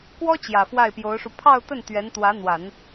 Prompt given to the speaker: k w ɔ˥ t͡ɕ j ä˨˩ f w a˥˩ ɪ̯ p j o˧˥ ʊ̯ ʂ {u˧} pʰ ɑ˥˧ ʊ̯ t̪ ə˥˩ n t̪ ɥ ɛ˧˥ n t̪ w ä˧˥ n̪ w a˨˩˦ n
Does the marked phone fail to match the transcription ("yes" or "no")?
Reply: no